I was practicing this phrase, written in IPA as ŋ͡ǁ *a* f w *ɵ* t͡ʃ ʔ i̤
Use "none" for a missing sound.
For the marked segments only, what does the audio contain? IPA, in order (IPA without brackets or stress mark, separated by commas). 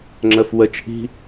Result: ə, ə